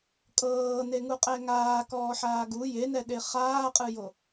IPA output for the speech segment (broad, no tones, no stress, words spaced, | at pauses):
kʼɤːneŋu qʼɛŋaː kɔːħaːɡu jenɛɗe χaːqʼɯjo